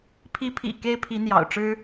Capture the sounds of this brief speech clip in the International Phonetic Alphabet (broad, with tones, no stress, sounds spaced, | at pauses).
pʰ i˧˥ pʰ ḭ˨˩ k e˥ ɪ̯ pʰ i˧˥ n̪ j ɑ̰˨˩ ʊ̯ ʈ͡ʂ ɻ̩˥